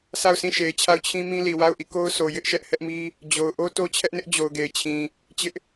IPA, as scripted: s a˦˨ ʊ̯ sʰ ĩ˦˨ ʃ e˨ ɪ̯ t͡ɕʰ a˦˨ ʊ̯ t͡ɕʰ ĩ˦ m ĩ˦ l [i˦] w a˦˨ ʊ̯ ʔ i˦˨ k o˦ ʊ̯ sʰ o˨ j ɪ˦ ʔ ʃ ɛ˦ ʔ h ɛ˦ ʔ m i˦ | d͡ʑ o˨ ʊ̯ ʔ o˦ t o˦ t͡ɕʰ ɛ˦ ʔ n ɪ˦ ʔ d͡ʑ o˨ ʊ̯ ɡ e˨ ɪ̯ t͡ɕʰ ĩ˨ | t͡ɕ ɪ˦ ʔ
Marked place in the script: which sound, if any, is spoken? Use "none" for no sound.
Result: i˨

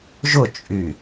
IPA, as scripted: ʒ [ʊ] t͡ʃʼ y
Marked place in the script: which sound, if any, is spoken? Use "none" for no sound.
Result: ʊ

